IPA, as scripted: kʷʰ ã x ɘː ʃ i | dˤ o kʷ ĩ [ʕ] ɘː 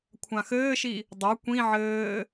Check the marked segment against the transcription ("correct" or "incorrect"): correct